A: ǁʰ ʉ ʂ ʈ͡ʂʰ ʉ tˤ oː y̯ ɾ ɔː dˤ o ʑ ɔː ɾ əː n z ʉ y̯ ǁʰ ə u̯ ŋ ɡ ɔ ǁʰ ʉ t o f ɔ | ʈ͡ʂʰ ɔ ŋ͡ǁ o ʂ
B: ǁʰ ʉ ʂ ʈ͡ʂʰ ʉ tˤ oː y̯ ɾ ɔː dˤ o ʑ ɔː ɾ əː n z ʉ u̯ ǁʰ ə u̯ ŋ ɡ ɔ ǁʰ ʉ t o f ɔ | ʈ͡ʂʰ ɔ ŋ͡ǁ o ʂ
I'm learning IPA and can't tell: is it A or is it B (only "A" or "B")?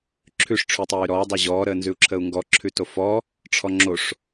B